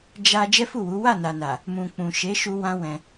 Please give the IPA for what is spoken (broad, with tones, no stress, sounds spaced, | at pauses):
d͡ʒ a˧ d͡ʒ ɛ˦ f u˦˨ w u˨˦ w a˦˨ n a˨ n a˨ | m ũ˨ k͡p ũ˨ ʃ e˨˦ ʃ u˧ w ã˦ w ɛ̃˧